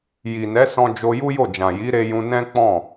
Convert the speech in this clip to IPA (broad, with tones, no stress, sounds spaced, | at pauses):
j i˨ n ɛ˨˦ s ɔ̃˧ d͡ʒ o˧ j u˦ j o˦˨ d͡ʒ ã˨ j i˨˦ ɾ e˧ j ũ˧ n ɛ̃˦ k͡p ɔ̃˦˨